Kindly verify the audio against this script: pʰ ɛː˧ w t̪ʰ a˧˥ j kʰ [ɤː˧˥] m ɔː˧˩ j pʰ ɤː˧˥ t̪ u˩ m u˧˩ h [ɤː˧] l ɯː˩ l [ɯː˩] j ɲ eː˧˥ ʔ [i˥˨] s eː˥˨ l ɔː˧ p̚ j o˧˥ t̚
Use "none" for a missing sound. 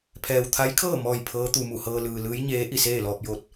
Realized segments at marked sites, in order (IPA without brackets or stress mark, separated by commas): ɤː˥˨, ɤː˧, ɯː˧˥, i˥˨